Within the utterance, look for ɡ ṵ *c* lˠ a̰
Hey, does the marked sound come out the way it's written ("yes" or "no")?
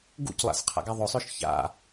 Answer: yes